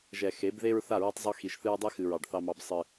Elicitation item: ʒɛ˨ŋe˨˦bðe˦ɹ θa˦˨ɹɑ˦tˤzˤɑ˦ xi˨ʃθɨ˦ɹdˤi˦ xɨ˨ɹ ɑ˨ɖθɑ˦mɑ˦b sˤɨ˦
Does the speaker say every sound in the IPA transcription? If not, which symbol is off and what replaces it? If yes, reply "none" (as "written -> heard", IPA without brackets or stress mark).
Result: ŋ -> x